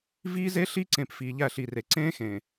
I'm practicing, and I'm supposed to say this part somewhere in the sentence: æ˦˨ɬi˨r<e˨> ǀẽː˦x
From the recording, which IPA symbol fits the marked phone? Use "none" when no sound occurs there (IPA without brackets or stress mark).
e˨